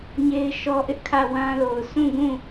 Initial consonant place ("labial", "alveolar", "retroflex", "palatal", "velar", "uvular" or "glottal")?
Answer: palatal